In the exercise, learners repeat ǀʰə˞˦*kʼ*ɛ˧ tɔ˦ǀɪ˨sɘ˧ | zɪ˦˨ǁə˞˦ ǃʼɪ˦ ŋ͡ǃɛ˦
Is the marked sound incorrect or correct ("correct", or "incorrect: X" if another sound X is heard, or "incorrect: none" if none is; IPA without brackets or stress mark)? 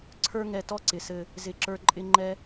incorrect: ŋ